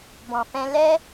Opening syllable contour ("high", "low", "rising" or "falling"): low